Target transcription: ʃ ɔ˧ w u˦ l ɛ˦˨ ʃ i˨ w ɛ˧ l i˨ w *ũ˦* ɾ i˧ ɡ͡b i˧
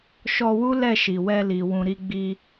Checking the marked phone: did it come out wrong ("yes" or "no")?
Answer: yes